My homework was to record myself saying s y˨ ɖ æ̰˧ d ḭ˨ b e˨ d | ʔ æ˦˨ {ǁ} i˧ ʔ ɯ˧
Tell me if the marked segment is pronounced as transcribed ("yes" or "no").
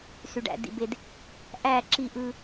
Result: yes